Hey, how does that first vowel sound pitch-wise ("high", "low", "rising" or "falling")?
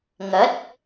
rising